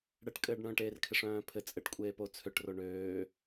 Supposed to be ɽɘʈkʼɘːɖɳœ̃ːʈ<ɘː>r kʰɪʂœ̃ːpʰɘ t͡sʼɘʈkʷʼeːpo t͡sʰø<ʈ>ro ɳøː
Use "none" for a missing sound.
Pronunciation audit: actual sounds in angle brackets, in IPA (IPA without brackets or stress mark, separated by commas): eː, ʈ